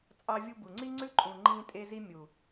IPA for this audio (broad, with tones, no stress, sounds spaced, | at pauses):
t͡sʼ ɑ˧ vʲ u˧ b u˨ ŋ͡ǀ i˦ ŋ͡ǀ ʉ˦ ǃʼ ũ˨ ŋ͡ǃ ĩː˧ tʼ e˧ z i˧ mʲ u˨